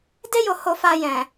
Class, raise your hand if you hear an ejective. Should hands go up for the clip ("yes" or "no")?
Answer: no